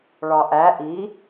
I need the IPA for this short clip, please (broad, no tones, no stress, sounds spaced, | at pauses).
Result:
ɭ ɒ ʔ æ ʔ i